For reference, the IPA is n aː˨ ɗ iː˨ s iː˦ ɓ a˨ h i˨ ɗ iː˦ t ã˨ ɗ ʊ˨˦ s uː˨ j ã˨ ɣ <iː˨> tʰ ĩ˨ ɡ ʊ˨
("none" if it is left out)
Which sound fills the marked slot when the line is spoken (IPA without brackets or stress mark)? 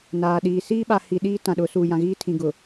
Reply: iː˦